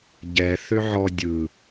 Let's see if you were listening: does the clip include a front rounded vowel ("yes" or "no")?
yes